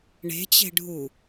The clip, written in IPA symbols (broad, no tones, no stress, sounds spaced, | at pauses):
ɳ e̤ t͡ɕ e̤ ɖʱ u